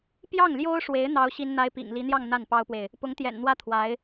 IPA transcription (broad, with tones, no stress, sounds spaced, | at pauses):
p j ɑ˥˩ ŋ l j o˥ ʊ̯ ʂ w e˧˥ ɪ̯ n̪ ɑ˥ ʊ̯ ɕ i˥ n n̪ a˥ ɪ̯ p ḭ˨˩ ŋ l i˧˥ n̪ j ɑ˥˧ ŋ n̪ a˥˩ n p ɑ˥ ʊ̯ p w e˨ ɪ̯ | p ʊ˧˥ ŋ t̪ j ɛ̰˨˩ n n̪ w ä˥˩ t̪ʰ w a˧˥ ɪ̯